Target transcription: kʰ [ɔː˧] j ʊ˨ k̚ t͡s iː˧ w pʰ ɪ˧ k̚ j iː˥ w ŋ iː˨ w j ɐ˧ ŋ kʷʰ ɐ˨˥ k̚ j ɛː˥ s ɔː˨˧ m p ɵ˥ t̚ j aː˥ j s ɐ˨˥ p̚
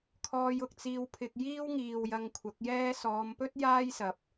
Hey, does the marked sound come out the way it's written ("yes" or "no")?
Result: yes